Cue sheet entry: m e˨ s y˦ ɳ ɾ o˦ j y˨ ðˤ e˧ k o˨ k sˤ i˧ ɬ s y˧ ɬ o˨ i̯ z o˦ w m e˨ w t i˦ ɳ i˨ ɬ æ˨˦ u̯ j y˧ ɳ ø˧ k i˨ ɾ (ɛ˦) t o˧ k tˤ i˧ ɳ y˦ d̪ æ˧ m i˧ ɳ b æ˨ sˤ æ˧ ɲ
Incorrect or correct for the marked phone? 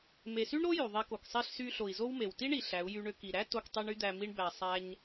incorrect: æ˦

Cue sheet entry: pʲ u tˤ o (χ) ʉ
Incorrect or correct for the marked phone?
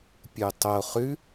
correct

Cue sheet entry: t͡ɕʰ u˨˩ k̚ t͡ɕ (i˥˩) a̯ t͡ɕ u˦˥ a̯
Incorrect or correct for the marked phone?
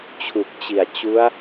incorrect: i˨˩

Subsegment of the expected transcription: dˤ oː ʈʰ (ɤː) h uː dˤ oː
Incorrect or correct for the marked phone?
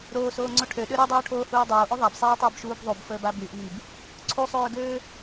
incorrect: oː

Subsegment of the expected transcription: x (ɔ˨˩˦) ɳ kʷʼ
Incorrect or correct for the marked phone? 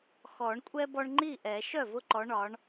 correct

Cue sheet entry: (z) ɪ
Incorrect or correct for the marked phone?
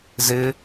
correct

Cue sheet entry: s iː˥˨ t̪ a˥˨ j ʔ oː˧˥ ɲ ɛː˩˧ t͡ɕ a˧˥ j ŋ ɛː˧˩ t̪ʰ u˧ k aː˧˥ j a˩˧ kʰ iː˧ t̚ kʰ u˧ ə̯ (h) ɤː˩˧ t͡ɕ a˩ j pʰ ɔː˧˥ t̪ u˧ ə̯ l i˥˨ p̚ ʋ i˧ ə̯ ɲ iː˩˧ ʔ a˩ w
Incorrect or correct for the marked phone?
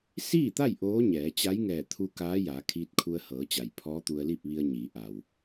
correct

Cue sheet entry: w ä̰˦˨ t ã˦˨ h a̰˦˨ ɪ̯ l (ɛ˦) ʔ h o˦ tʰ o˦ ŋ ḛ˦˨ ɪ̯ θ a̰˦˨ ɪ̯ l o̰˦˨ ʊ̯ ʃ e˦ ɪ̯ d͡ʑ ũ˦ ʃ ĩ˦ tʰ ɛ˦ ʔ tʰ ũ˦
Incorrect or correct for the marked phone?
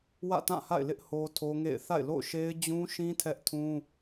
incorrect: ɪ˦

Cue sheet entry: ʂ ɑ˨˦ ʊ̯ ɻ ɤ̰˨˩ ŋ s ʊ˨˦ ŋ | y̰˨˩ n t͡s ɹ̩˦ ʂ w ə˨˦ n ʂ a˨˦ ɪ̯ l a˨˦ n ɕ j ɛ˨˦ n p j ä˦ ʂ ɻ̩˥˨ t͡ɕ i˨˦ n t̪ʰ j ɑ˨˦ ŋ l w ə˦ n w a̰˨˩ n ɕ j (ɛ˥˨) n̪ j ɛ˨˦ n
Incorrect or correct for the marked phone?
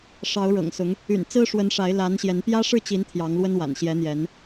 incorrect: ɛ˨˦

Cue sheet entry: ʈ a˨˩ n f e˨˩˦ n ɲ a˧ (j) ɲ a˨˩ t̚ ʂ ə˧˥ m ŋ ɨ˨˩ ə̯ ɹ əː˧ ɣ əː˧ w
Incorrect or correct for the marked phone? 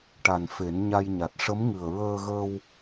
correct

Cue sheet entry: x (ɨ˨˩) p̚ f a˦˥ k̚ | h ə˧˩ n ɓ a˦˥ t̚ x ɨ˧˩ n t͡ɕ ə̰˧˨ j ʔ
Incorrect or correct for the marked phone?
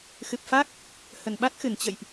correct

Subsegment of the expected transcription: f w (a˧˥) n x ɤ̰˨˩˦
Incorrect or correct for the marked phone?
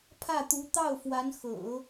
correct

